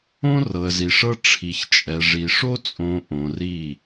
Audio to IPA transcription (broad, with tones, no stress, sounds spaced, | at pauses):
õ˦ r ɤ˨ ə̯ z i˨ ʂ ɤ˦ ʈ͡ʂʰ i˨ ç t͡ʃʼ ɛ˨ ʐ i˨ ʂ o˦ t͡sʼ õ˨ ʔ õ˨ r i˦˨